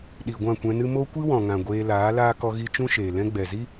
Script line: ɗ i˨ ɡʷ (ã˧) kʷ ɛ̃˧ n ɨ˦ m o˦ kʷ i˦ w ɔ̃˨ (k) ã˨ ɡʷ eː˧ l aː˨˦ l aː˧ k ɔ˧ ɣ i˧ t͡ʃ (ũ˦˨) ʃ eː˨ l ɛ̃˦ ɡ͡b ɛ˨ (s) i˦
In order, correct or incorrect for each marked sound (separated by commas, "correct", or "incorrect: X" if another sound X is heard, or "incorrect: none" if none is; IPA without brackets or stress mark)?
incorrect: ã˦˨, incorrect: ŋ, incorrect: ũ˦, incorrect: z